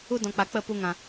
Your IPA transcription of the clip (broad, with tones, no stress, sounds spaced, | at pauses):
u˧ d ɔ̃˨ k͡p a˨ k͡p ə˦˨ p u˧ ŋ ã˨